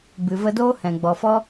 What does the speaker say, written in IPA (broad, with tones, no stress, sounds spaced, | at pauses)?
b ɨ˨ v ə˧ d oː˦ h ɛ̃˨ ɡ͡b ɔ˨ f ɔ˦